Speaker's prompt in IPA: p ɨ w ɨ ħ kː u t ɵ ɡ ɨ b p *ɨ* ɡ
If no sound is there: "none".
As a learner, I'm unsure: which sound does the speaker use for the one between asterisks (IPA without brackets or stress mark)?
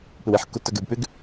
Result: ʉ